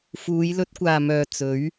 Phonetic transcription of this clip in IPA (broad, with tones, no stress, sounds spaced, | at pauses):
f uː˨˧ j l ɵ˧ t̚ kʷ aː˨ m œː˨ t͡s ɵ˨˥ ɥ